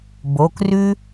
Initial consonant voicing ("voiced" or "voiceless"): voiced